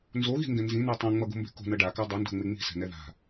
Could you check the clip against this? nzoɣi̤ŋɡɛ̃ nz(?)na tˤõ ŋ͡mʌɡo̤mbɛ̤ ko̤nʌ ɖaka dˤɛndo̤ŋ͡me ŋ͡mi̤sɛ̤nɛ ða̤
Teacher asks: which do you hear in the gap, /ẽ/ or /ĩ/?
ĩ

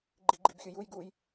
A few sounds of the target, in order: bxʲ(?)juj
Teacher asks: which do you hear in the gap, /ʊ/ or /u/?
ʊ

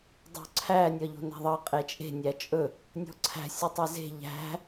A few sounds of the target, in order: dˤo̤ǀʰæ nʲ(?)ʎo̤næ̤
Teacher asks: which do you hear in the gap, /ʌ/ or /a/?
ʌ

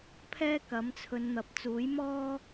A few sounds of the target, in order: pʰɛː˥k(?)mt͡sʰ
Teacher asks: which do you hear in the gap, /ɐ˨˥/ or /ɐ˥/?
ɐ˨˥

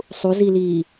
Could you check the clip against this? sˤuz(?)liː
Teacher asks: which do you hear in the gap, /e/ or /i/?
i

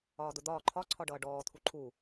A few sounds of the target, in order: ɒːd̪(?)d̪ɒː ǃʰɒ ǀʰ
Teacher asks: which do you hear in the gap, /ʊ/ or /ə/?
ʊ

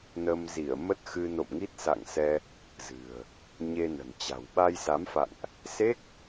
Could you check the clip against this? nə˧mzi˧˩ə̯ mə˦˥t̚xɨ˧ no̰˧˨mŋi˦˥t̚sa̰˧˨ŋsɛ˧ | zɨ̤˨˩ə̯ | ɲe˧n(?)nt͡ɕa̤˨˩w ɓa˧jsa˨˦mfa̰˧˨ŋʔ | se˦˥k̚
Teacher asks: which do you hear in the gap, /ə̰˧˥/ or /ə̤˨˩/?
ə̤˨˩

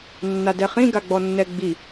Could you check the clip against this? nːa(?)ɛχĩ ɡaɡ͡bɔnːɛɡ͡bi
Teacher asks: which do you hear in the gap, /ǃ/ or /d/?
d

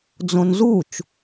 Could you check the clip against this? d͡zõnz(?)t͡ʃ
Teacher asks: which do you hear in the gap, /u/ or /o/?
u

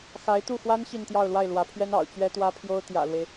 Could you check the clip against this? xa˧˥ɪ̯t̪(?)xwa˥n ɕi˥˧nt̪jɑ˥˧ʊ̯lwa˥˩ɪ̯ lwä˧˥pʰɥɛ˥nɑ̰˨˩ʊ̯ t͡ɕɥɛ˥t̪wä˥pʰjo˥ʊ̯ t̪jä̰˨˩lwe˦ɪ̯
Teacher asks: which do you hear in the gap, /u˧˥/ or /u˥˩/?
u˥˩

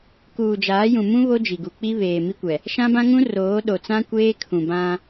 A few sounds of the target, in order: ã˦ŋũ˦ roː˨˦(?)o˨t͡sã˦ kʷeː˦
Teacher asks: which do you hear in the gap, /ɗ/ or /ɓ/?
ɗ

